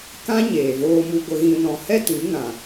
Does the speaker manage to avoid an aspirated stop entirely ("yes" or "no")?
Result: yes